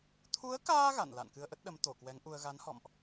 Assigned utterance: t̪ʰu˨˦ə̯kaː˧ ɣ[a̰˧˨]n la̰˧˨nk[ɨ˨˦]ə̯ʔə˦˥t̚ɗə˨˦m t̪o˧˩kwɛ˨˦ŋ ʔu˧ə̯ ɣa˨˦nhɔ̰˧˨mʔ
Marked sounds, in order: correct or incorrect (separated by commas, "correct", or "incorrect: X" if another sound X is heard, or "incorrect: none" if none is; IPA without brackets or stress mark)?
correct, incorrect: ɨ˧